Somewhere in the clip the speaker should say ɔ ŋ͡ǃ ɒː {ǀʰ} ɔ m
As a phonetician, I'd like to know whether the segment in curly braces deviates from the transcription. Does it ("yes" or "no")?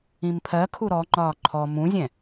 yes